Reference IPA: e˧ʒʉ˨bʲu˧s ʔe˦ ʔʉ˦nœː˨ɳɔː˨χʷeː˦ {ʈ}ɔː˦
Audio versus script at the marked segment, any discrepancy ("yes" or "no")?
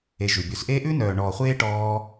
no